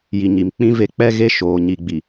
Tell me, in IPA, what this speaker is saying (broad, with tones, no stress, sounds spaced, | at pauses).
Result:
j i˨ ɲ i˨ m k͡p ĩ˦ v e˦ k͡p ɛ˦ ɣ e˦ ʃ oː˨ ɲ i˨ ɡ͡b i˨